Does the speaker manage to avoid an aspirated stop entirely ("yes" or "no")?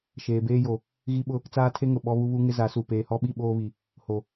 no